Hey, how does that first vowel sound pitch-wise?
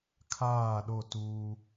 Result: falling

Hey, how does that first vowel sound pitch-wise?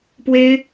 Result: high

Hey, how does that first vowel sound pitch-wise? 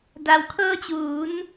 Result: low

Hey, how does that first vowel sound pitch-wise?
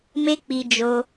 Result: high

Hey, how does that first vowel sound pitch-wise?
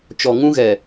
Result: low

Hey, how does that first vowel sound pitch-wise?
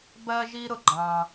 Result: high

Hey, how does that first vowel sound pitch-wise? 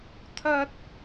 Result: high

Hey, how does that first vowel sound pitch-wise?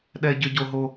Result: high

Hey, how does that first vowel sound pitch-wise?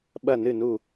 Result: falling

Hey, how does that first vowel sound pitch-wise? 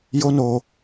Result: high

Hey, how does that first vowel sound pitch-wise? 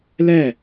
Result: falling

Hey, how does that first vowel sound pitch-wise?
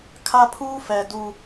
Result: high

